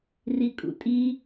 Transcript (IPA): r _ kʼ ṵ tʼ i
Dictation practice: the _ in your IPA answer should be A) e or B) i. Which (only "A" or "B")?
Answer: B